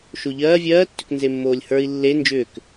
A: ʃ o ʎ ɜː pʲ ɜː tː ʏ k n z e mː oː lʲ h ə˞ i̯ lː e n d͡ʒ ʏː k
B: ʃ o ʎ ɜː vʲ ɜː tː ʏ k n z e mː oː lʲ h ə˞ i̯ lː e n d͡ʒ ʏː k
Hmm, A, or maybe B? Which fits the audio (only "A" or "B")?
B